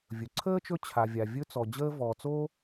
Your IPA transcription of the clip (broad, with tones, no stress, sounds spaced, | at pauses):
vʲ ɵ˩ ǀʰ əː˥ t͡ʃ ɵ˦ t͡ɕʰ a˨ vʲ a˨ vʲ ɵ˦ t͡s ɔ˨ d͡ʑ əː˦ v ɔː˨ t͡s oː˥